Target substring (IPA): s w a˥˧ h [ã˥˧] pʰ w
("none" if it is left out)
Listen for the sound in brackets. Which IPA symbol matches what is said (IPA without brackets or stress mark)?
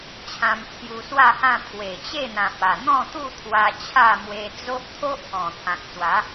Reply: ã˥˧